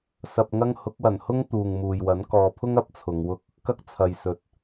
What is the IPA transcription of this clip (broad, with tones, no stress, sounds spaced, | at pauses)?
s ɐ˧ p̚ ŋ ɐ˥ ŋ h ʊ˨˥ k̚ w ɐ˨˩ n h ʊ˥ ŋ t̪ uː˨ ŋ m uː˨ j w ɐ˨˥ n k ɔː˨˧ pʰ ʊ˥ ŋ ɐ˥ p̚ t͡sʰ ʊ˨˧ ŋ w ʊ˥ k̚ | k ɐ˥ k̚ t͡sʰ ɐ˨ j s ɵ˨ t̚